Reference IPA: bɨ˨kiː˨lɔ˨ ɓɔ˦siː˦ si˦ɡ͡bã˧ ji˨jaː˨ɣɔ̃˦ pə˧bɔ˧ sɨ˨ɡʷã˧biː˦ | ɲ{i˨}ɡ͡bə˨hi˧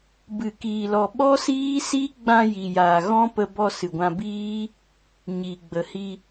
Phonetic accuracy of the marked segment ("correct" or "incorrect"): correct